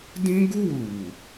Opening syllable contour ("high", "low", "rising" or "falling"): high